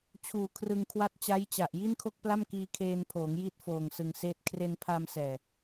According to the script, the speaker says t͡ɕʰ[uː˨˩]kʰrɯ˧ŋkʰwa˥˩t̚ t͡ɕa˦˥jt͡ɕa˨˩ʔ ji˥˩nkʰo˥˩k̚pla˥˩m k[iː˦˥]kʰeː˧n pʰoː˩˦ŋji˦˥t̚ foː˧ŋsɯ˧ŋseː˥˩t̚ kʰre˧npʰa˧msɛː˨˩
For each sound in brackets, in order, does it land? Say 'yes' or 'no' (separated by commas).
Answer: yes, no